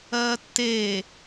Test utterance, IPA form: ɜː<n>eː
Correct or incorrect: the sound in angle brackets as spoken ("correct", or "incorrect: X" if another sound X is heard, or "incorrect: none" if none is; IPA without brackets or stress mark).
incorrect: tː